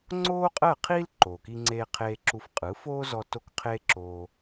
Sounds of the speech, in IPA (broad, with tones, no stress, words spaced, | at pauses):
ŋ͡ǀoː˥qʼɜː˥˩qʰiː˥l ǃoː˩ki˧ŋ͡ǀeː˧ qʰeː˧ǁu˧f qʼɯ˩˥foː˥zɔ˧ to˥kqʰeː˥ ǁoː˧